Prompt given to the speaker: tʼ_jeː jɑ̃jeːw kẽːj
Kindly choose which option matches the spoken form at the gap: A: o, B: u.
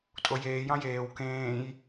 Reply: A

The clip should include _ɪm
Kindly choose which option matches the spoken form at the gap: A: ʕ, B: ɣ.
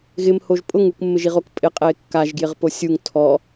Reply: B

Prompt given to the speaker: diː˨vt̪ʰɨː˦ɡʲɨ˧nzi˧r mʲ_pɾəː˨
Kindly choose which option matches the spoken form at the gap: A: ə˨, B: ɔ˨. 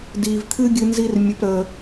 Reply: A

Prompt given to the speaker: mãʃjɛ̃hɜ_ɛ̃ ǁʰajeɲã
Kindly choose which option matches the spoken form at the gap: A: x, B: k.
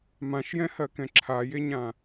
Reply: B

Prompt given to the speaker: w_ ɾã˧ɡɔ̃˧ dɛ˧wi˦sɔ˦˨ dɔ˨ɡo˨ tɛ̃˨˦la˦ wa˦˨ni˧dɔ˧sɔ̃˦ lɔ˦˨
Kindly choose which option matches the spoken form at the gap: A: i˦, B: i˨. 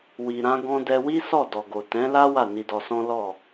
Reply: B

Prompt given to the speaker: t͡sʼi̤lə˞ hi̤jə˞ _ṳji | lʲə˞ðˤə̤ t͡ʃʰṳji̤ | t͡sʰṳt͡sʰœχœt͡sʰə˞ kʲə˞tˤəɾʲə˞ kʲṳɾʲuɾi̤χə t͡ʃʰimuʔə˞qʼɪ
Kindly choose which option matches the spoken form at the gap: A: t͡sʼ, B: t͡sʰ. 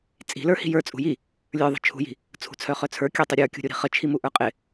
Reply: A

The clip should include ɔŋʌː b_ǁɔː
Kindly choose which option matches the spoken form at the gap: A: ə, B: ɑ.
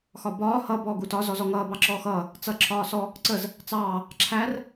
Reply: B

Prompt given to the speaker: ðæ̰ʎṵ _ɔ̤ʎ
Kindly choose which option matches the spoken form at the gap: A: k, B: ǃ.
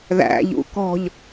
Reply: A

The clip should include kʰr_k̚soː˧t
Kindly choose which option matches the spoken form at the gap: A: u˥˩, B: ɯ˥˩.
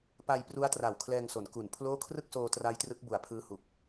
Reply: B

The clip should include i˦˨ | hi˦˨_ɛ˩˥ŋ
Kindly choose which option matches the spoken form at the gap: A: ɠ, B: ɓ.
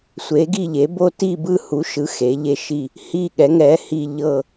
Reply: A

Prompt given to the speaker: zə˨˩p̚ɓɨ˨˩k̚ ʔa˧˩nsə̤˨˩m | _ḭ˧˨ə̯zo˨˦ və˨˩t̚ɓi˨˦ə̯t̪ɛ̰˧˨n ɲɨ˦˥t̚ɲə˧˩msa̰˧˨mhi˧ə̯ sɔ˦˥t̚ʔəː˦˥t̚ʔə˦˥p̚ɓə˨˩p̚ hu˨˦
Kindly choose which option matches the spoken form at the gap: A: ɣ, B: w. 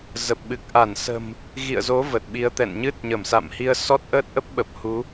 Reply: A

